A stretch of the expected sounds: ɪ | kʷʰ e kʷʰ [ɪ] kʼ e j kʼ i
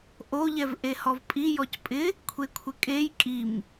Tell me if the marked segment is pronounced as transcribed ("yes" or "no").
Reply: yes